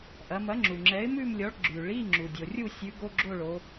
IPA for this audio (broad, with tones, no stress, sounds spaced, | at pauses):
ʔ ɐ˩˧ m ɐ˨˥ ŋ͡ǁ u˩ ŋ͡ǁ ɛ˨˥ ɪ̯ m ʉ˥˧ m lʲ ɔ˨˥ ɭ ɡ͡ǁ ʉ˩ ɭ i˧˥˧ ŋ͡ǁ u˩ dʲ o˩ rʲ u˥˧ sʲ ʉ˨˥ ɡ o˧˥˧ ɡ͡ǁ o˥˧ ɭ o˩˧